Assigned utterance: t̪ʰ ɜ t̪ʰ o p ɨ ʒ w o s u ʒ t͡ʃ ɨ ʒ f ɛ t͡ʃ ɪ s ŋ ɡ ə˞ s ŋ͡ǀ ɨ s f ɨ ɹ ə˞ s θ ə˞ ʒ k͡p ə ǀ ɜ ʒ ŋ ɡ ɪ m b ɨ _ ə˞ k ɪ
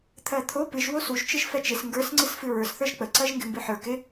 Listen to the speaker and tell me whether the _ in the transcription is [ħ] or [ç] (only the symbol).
ħ